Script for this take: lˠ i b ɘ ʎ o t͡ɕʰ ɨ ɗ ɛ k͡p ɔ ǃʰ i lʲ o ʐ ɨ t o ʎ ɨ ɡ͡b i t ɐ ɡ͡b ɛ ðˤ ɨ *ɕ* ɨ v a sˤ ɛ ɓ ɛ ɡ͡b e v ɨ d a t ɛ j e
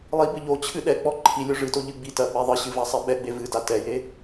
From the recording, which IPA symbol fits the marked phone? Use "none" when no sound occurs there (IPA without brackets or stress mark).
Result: ɕ